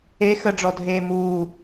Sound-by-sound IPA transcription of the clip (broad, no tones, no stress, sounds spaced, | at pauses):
e x ə ɖ͡ʐ ɔ dʱ eː m uː